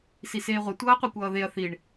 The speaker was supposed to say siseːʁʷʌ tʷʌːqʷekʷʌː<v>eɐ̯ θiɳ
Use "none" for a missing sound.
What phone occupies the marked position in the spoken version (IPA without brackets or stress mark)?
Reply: ð